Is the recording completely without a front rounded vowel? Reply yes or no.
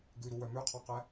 no